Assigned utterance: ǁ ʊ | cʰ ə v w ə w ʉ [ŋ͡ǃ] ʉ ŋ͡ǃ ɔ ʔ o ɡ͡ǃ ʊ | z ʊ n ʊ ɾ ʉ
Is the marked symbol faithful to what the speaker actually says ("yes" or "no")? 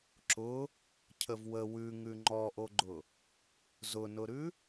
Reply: no